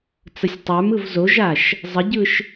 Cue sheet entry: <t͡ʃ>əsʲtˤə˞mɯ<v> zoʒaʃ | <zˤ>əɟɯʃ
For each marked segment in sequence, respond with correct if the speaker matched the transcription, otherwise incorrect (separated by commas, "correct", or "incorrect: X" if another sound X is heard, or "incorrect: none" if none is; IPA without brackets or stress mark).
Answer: incorrect: t͡s, correct, correct